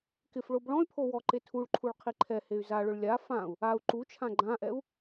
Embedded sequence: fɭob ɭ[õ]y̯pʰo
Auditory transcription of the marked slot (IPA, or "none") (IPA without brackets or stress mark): ɔ̃